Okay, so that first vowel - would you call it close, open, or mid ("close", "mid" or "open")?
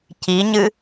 close